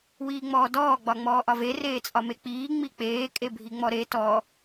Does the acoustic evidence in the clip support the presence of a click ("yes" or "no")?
no